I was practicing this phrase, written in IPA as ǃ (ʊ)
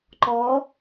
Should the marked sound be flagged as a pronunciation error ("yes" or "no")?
yes